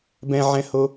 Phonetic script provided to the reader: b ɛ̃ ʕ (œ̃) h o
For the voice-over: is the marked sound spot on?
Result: no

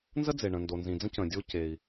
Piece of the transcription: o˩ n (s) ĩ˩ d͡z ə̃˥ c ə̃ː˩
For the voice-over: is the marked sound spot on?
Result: no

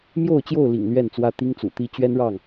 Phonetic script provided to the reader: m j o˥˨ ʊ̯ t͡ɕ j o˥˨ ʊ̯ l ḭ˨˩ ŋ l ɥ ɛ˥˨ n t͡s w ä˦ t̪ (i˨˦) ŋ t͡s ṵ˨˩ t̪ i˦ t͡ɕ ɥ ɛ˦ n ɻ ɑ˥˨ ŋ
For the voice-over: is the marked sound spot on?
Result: no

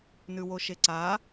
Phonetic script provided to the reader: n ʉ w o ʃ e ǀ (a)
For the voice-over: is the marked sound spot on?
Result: yes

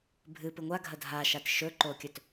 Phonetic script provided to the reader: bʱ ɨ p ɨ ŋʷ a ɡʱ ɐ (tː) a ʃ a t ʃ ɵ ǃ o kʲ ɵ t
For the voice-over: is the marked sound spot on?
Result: no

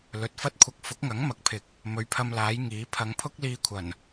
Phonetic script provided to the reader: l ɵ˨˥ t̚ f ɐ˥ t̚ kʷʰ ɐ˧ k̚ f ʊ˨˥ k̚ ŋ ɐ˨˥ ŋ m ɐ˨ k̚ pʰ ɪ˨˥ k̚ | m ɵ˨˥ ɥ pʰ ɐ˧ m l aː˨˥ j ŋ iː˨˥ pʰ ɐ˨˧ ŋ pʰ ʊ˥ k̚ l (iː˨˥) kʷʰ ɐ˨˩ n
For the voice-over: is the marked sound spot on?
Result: no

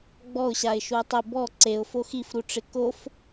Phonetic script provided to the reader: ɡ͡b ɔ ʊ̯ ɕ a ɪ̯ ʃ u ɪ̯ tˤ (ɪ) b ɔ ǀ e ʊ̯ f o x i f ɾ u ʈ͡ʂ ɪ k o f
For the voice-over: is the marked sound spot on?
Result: yes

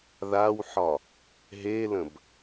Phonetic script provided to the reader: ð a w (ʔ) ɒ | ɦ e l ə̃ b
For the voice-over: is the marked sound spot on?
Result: no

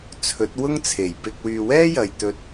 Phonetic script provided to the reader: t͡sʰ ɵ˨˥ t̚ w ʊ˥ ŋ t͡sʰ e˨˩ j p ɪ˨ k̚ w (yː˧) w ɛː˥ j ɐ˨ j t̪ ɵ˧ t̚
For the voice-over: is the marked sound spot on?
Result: no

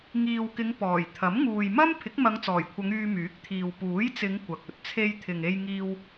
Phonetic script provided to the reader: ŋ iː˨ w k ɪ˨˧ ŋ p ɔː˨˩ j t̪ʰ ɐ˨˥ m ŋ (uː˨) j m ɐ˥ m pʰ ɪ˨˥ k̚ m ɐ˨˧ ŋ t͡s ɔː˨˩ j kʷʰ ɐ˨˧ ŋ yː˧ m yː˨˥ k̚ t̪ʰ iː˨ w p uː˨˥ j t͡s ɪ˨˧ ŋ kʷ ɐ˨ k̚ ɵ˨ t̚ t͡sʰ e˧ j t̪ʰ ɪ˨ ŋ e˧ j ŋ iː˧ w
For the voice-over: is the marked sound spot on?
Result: yes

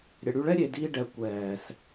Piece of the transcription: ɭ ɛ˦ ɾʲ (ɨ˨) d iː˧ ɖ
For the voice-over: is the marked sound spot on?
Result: no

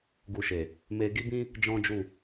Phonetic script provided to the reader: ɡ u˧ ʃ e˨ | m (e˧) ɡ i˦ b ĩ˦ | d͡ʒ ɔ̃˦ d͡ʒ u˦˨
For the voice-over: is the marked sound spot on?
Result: yes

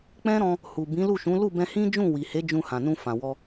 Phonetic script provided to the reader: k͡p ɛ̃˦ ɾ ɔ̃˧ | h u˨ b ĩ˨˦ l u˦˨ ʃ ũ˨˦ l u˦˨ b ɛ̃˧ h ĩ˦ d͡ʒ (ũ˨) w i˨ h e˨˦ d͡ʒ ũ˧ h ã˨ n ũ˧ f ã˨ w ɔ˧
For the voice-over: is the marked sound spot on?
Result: no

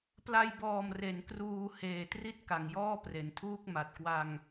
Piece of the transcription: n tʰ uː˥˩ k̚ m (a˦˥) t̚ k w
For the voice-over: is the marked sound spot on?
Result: no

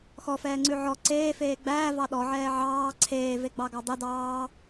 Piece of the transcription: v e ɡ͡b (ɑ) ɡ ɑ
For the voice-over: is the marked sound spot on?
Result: yes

